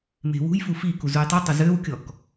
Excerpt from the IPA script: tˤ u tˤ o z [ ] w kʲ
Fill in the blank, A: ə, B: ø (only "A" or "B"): B